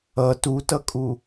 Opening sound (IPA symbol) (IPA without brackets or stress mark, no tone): ʌ